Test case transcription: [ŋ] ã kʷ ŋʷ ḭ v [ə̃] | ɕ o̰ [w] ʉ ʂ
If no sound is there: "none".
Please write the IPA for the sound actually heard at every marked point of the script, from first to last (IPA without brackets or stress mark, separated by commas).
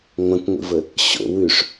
ŋʷ, ə, w